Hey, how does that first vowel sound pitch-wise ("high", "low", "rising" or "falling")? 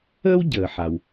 high